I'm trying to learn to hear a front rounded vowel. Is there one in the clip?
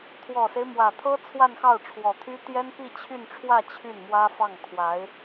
yes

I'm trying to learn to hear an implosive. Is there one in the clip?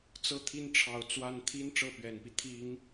no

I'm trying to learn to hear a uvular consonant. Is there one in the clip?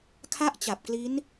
no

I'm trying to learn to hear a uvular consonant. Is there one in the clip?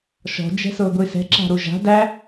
no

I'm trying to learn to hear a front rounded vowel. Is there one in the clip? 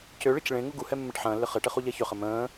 yes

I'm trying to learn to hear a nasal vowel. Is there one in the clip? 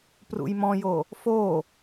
yes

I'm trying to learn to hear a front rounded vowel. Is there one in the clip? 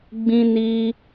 no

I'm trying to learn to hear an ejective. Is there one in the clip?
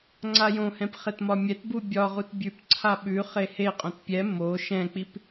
yes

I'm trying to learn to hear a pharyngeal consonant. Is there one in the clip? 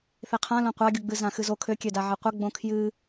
yes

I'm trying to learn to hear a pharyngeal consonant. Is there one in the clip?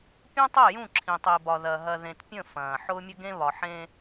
yes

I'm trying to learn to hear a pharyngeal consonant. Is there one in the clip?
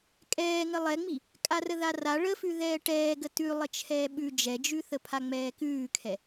no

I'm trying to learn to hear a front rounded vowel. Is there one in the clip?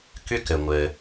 yes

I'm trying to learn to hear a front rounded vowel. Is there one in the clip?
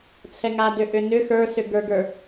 yes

